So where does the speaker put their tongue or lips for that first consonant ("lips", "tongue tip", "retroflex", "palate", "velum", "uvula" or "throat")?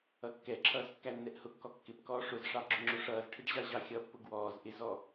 velum